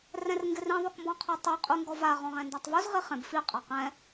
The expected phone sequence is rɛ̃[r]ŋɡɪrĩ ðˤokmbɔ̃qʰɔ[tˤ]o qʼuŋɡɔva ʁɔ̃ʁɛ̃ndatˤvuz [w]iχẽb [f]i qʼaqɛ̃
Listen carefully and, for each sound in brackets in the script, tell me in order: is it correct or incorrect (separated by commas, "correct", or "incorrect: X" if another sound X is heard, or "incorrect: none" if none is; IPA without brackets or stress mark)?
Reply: correct, correct, incorrect: ʁ, correct